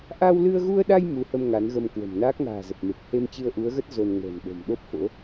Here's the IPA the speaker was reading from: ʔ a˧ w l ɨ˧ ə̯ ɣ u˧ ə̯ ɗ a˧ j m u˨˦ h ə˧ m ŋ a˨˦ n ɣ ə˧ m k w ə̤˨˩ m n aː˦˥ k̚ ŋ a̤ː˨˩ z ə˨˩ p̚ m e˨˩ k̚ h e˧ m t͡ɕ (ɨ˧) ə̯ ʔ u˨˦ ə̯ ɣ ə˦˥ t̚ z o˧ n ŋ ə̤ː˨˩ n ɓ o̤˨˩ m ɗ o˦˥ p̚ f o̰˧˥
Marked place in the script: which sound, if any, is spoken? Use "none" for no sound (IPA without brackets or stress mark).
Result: ɨ˧